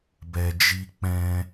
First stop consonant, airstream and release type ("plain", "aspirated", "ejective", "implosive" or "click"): plain